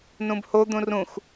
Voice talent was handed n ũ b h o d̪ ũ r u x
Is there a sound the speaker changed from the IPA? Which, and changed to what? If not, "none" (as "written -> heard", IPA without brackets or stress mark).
u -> ũ